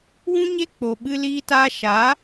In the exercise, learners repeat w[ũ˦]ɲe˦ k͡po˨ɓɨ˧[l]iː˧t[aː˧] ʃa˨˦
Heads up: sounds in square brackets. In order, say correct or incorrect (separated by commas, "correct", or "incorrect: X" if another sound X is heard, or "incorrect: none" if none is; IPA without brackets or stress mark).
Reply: correct, correct, correct